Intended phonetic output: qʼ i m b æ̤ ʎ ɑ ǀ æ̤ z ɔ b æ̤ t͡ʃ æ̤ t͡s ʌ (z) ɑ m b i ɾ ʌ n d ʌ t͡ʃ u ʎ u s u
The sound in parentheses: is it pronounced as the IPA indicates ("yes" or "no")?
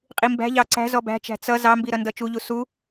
yes